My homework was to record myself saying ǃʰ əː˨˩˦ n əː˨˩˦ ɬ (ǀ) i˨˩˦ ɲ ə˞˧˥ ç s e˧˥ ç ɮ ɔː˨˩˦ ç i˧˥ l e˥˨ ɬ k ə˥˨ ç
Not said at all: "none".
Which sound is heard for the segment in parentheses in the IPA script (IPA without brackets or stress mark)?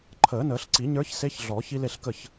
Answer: ǀ